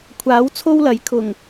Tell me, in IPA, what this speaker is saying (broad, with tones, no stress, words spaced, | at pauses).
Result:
kʷʰaː˨˥wt͡sʰo˥wlɐ˨˥j kʰʊ˨˩ŋ